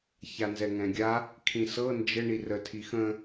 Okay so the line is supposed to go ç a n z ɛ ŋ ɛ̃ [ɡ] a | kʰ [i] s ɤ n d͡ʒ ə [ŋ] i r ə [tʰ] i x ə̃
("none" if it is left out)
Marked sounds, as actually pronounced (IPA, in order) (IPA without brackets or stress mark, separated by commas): ɡʲ, ĩ, ɳ, tʰ